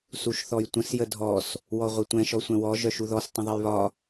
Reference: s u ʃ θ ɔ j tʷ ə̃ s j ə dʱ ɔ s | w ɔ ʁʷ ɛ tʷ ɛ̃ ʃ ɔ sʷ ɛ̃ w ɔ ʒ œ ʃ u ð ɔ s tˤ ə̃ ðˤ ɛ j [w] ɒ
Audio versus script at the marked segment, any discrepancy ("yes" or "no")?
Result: yes